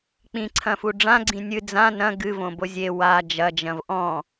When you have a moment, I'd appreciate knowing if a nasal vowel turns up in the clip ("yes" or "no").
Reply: yes